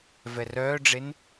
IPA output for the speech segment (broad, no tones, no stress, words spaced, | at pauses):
vɛrœːɖ͡ʐen